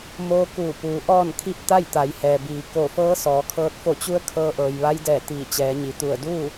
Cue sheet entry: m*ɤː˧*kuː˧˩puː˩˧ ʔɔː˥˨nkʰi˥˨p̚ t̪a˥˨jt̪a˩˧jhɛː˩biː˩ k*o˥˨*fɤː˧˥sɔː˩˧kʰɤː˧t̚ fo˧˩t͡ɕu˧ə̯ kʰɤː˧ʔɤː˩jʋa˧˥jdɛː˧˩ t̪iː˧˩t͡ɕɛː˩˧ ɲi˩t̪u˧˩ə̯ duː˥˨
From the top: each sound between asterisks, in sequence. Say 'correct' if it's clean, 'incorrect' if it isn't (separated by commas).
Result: incorrect, incorrect